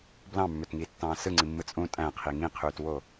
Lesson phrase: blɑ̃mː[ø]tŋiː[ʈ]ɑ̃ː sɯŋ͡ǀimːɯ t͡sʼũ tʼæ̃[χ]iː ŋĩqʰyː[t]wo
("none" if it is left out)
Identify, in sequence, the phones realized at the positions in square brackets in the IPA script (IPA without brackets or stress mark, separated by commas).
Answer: ø, tː, qʰ, t